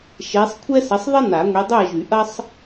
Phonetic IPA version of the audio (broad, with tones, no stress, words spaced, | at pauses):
ʃe˨˦sˤkʷʰɛ˥ sɐ˨˦sˤðˤɐ˥ na˨˩˦ŋʷi˨˦dˤø˥˨ɐ̯ ʒy˨˩˦ʔɐ˥sˤ